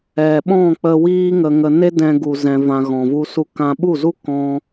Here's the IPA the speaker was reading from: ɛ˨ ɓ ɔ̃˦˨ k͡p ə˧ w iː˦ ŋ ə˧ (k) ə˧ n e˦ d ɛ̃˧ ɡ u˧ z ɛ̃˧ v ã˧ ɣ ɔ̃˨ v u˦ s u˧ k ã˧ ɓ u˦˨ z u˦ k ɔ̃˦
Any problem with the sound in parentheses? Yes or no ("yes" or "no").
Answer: yes